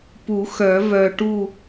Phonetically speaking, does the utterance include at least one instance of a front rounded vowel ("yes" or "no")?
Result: yes